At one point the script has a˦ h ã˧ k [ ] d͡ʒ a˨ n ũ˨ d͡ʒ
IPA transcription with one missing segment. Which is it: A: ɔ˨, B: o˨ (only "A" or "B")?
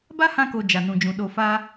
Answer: B